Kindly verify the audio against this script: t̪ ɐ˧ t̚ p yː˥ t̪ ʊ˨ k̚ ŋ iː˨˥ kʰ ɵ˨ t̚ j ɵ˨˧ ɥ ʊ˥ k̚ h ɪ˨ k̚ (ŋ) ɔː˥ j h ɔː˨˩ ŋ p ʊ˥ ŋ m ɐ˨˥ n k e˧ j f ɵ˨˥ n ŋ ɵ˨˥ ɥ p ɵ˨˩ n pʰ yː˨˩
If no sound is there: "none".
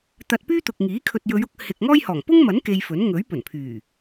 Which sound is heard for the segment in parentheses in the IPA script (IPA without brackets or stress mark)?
ŋ